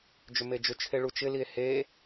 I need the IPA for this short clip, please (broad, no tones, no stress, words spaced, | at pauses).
d͡ʒʏmed͡ʒʏt͡ʃʰe ɭut͡ʃɪlie̯ he